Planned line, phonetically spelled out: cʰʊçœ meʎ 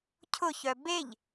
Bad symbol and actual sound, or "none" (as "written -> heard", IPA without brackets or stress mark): m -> b